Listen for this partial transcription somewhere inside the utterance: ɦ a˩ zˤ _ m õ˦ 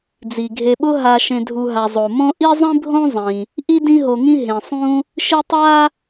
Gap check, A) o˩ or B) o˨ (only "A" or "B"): A